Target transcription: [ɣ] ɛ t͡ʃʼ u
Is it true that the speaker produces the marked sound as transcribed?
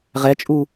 no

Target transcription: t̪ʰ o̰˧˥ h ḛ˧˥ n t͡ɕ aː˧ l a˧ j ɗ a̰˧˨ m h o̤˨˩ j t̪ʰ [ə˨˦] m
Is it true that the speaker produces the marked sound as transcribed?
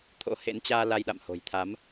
no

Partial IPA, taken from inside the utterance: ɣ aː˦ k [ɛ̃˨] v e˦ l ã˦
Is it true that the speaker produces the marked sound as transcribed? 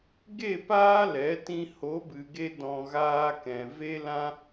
yes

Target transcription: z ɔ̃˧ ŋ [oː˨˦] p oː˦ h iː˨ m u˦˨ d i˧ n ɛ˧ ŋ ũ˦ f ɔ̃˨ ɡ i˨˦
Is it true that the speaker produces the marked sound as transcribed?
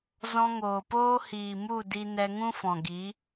no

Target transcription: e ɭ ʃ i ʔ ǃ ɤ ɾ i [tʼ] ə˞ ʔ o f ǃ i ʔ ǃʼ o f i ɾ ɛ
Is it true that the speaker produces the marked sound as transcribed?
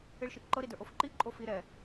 no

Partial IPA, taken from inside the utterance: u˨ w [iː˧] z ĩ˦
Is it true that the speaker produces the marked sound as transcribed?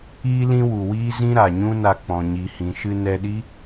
no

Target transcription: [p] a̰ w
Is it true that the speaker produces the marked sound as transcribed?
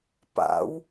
yes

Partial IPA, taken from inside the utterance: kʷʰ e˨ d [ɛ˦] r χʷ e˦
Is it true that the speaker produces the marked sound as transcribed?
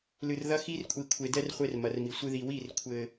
yes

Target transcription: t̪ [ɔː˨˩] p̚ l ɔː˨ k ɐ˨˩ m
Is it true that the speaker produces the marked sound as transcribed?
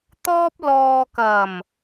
no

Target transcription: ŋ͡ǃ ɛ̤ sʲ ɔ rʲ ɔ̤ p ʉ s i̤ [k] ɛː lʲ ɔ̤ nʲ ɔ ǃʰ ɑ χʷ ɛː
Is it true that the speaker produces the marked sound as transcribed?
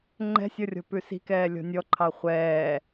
yes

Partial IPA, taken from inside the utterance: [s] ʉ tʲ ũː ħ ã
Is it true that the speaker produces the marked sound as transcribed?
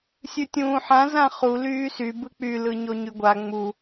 no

